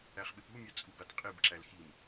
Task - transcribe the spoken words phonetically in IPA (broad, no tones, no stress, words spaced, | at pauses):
æχɓɪpumʲa t͡sʼubatqʼibǁæl xim